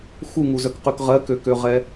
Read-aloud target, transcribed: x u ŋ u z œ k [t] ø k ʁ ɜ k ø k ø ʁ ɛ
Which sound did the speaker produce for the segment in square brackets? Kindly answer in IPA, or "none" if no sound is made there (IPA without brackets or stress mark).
q